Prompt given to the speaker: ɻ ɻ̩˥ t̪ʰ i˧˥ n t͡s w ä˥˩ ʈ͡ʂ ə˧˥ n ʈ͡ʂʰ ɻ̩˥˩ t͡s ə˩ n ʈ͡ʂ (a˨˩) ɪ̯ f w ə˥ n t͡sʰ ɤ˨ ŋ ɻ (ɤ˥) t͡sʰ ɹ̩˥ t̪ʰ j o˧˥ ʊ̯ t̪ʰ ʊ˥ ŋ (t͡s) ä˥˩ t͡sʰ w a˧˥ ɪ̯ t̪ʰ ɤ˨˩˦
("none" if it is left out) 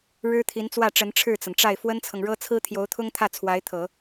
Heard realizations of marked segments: a˥˩, ɤ˥, t̪ʰ

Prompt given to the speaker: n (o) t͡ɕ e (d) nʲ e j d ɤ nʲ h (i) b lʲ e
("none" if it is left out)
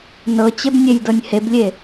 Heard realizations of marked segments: ɤ, b, e

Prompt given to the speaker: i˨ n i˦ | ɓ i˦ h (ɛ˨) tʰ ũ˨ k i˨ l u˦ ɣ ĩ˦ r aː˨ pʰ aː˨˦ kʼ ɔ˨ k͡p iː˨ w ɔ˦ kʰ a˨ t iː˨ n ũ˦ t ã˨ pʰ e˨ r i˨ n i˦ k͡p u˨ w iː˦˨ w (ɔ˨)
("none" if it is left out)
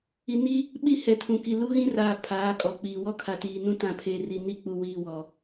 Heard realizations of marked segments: ɛ˨, ɔ˨

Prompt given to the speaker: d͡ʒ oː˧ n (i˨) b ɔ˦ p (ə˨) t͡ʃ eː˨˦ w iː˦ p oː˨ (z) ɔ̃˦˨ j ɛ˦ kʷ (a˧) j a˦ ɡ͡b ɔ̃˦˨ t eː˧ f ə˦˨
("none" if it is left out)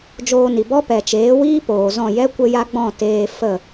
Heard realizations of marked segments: i˨, ɛ˨, z, ə˧

